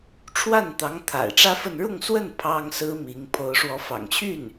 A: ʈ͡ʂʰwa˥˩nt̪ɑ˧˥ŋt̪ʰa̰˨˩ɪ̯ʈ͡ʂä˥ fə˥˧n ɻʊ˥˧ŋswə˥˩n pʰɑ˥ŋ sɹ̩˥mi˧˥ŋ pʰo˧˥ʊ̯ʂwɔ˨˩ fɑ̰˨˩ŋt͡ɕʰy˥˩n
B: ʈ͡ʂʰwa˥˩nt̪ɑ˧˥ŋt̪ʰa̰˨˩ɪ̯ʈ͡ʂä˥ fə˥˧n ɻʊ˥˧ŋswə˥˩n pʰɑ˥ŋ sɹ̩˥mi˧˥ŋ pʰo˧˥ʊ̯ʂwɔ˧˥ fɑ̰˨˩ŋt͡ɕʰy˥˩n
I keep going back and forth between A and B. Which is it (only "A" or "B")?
B